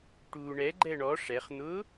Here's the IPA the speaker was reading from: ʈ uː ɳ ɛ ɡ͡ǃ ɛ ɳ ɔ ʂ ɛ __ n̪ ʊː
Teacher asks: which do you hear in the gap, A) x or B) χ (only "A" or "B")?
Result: B